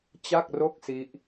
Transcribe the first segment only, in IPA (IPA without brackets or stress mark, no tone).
t͡ɕ